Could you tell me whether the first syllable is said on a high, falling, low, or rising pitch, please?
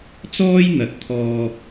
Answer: high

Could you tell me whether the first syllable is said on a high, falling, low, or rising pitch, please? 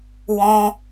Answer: high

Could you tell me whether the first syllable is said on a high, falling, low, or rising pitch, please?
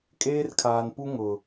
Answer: high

